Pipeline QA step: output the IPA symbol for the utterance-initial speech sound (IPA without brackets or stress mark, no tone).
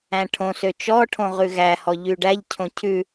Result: æ̃